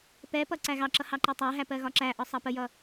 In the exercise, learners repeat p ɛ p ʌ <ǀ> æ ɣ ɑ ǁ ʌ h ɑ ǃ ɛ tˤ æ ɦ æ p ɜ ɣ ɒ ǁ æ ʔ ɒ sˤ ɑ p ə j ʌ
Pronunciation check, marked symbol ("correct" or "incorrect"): correct